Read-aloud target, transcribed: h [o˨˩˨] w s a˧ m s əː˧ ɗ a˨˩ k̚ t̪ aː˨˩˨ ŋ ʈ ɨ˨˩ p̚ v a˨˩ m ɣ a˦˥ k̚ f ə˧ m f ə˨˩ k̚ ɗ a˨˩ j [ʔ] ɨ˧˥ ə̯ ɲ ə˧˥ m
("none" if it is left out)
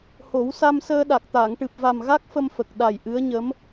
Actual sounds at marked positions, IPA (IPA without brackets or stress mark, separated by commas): o˨˩˦, ʔ